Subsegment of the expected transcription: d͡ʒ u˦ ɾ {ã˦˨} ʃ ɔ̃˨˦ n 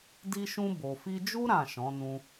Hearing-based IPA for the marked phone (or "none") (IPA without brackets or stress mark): ã˦˨